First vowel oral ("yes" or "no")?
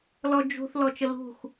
yes